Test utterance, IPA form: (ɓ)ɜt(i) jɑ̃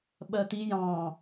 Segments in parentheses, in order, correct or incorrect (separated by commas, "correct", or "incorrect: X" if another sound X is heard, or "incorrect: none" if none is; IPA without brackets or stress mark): correct, correct